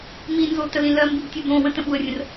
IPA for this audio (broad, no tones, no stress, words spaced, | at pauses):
minzo təlĩlɜmbib tʲubõwə̃ tə̃ɓuə̯rʲə̃r